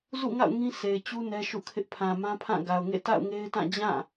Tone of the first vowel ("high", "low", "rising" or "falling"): falling